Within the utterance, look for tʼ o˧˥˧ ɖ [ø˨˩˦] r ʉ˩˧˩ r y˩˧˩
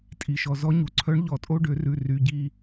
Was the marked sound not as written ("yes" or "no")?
no